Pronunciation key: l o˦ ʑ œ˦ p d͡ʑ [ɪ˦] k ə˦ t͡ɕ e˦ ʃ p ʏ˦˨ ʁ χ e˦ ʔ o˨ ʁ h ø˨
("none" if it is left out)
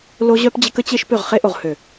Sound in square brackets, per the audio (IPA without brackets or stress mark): ɪ˦